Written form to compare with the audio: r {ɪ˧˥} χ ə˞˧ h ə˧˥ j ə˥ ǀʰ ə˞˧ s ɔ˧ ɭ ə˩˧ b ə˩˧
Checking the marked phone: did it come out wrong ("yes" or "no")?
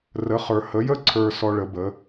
yes